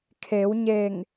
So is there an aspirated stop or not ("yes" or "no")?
yes